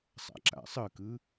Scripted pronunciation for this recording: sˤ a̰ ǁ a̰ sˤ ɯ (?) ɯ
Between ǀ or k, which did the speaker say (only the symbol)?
k